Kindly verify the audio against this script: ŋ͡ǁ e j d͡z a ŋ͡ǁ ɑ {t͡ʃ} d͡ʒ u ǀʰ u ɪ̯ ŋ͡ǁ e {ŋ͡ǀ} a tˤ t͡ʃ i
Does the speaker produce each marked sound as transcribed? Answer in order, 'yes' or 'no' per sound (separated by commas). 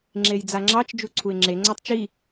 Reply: yes, yes